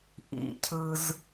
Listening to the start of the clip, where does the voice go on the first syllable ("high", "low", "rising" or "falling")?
low